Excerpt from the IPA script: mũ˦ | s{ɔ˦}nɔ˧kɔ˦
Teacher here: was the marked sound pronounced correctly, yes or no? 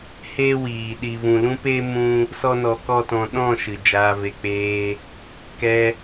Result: yes